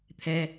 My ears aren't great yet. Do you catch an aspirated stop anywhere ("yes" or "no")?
yes